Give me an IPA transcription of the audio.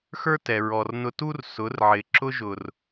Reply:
x ə˞˧ t ɛ˨ ɹ ɔ˨ r n ʊ˧ t u˦ r s ʊ˨˦ r ʕ ɪ˨ ǁ ʊ˧ ʒ ʊ˨ r

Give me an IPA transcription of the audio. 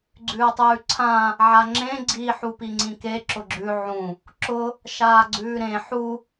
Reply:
ɡ͡ǀ ʉː tˤ ʉː ǀʰ ã | ʕ a ŋ͡ǁ ẽ ɡ͡ǀ i ħ u p i ŋ͡ǀ ĩ k e ǁ ʊ ɡ͡ǁ ʉ ʕ ũ | ǁ ʊ | ʃ aː ɡ͡ǀ ʉː ɾ ẽ ħ u

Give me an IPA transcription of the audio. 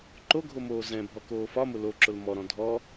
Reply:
ǃ o ɡʱ o m oː z ɛ̃ bʱ ɔ k oː f ɒ m ʊ l o ǁ ʊ l m ɔ ɾ ɔ̃ dʱ ɔ

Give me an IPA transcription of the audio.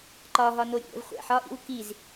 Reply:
ǃ ɒ ɦ ɒ n o ɾʲ ṵ ɾʲ æ̰ v χʷ æ̰ ħ ɒ ʔ ḭ w k i z

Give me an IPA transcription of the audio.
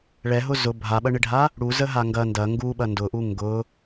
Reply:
ɭ ɛ ɦ ʊ z ʊ bʱ a ɓ ɐ ɳ ɪ ɖʱ a | ɽ u z ə ɦ a ŋ ɡ ɐ n d ɐ ŋ ɡ u ɓ ɐ n d ʊ ʔ u ŋ ɡ ʊ

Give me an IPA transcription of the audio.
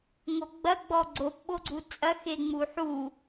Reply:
ŋ o ɡ͡b ɐ ɡ͡b ɔ ɡ͡ǀ o p ɓ o ɡ͡ǀ u t͡sʼ ɐ x e ŋ͡m u ħ u

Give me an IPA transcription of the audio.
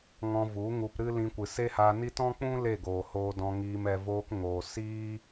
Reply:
ŋ ɔ̃˧ v u˨˦ ŋ u˧ p ɾ ɨ˦ l ĩ˧ kʷ ɨ˨ s e˦ h aː˧ n i˦ t ɔ̃˦ k͡p ũ˦ l e˦˨ ɡ oː˨ h oː˧ d ɔ̃˧ ŋ iː˧ m ɛ˧ v oː˧ k ŋ oː˨ s iː˦

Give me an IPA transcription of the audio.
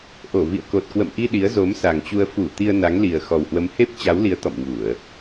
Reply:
ʔ o˧˩ v ḭ˧˨ ə̯ k o˨˩ t̚ k w ə̰˧˨ m ʔ i˧ ɗ i˨˦ ə̯ z o˨˦ m s a˨˩ ŋ t͡ɕ u˧ ə̯ f u˧˩ t̪ i˧ ə̯ n a˨˦ ŋ l i˨˩ ə̯ x ɔ˨˩ w h w ə˨˦ m h e˦˥ p̚ t͡ɕ a˨˦ w l i˨˦ ə̯ t̪ ɔ̰˧˨ m ɲ u˧˩˨ ə̯

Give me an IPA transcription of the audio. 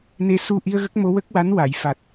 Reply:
n e˧ s u˧ ʔ i˧ ə̯ ɣ ə˦˥ k̚ m o˧˥ w ə˦˥ k̚ w a˧˥ n w a˨˩˨ j f a˨˩ t̚

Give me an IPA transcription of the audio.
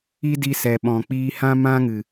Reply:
i˦ d i˧ s ɛ˨ ɓ ɔ̃˨ k͡p iː˦ h ã˦ m ã˦ ŋ ɨ˨

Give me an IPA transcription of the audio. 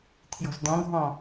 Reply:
tʰ j ɔ̤ z d̪ ɔ̃ ɡʱ ɔ̃

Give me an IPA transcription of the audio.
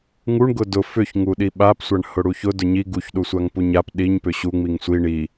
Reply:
ŋ u ɳ ɡ ʊ d ʊ f ʏ ç ŋ u ɗ i ɓ a p sʷ a ɳ h ʊ ɽ u ç ʊ d ʊ ɲ i ɡ u ç ɗ u sʷ a ŋ p u ɲ a p ɗ i ɲ p ʏ ɕ u ŋ͡m i ŋ sʷ i ɳ i

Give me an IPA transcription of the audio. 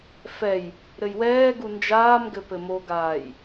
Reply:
f ɛ j | ɾ ɘ j w ɛː ɡ u n d͡ʒ aː m ɡ ɘ p ɘ m o ɡ aː j

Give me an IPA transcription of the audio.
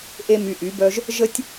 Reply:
ʔ e˦ m y˧ ʔ y˨˦ b œ˦ ʒ | ʒ ə˦ tʲ

